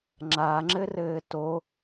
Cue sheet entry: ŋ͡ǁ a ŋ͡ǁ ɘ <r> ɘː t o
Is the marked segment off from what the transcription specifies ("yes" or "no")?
no